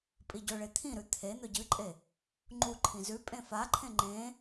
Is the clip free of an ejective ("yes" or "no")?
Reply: no